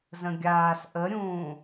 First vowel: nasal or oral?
nasal